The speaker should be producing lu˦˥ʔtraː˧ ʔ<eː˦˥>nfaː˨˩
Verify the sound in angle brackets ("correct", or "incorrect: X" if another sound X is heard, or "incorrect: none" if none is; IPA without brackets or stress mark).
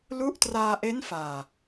incorrect: e˦˥